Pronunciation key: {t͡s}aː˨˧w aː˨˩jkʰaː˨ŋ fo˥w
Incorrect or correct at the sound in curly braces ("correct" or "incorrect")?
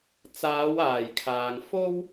correct